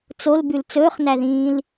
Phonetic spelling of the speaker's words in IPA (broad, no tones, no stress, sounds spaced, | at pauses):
t͡s o l b ʉ l t͡s ɵː χ n æ ð ĩː l